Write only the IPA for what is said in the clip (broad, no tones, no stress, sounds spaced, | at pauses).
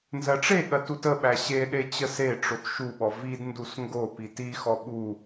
n z ɜ ʈ͡ʂ e ɠ ɜ t u t ə ɓ æ ɕ e ɗ e t͡ɕ ə s e ʈ͡ʂ o t ʃ u ɓ ɔ v i d n d u s ŋ ɡ o p i t i x ɔ ɓ u